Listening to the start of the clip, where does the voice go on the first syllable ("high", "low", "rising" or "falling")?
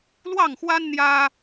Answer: falling